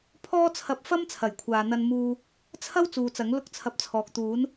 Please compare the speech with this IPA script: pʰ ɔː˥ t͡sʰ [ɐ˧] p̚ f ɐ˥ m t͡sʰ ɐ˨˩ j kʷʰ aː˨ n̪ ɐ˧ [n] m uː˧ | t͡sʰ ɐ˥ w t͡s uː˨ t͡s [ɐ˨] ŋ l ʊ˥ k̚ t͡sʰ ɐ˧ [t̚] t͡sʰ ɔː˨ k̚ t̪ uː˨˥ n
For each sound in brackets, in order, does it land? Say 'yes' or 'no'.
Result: yes, yes, no, no

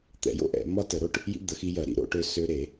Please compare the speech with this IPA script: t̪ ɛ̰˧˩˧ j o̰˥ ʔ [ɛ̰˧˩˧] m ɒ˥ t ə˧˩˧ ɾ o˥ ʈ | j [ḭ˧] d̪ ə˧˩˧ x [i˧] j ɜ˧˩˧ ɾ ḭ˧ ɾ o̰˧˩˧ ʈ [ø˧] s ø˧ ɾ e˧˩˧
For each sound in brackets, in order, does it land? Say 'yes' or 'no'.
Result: yes, no, yes, yes

